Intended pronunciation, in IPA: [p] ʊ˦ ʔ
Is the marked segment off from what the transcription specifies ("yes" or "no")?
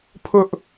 yes